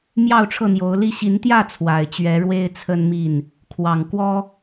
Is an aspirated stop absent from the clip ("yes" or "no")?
no